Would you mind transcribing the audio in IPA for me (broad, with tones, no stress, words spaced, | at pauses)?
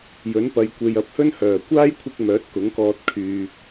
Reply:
jɵ˨˥npɐ˨jkʷe˨j ɐ˨p̚hɵ˥n hœː˨˩ kʷaː˥jkʷʰɪ˧k̚ mœː˨˥t̚kʊ˨˥ŋkɔː˧t̚ kʰyː˨